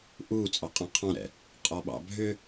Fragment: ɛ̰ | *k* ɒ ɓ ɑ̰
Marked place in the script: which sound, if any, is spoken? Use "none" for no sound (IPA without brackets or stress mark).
qʼ